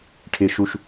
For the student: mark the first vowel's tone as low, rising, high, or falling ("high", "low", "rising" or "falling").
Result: low